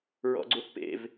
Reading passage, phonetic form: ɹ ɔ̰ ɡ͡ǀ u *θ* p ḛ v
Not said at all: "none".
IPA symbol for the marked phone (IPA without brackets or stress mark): θ